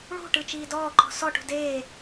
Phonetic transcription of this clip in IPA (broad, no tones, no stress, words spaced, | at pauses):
ɭṳʈɯ t͡ʃiːdɔːǃɔ̤ sɔʈṳ deː